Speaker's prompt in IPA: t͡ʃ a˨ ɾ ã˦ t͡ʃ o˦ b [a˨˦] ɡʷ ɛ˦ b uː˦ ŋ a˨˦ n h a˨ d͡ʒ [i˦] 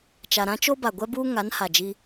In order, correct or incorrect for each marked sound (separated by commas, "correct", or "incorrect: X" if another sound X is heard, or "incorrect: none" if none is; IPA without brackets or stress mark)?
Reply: incorrect: a˨, correct